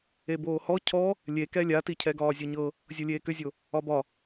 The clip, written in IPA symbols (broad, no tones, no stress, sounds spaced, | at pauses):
e b oː h ɔ cʰ ɔ | lʲ e k ɛ lʲ a t i cʰ ɛ ɡ ɒː zʲ ɤ ɲ ɤ | zʲ ɤ lʲ eː k ʏ zʲ o | ɒ b ɒ